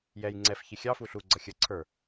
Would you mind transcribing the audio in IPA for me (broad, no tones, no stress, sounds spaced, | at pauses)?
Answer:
j ɛ j ŋ͡ǀ ɛ f ç i xʲ ɑ f u ɬ u ɡ͡ǀ ʌ xʲ ə ǀʰ ə˞